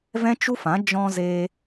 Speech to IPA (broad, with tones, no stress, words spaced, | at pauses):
vɛ̃˦t͡ʃu˦fã˨˦ d͡ʒɔ̃˧zeː˧